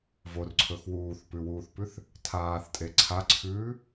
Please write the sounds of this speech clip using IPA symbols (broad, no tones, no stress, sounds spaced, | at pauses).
v o r ǀʰ ɵ x w uː θ p ʉ w uː θ p ʉ θ | tʰ aː θ tʼ e ǀʰ a ǀʰ ʉː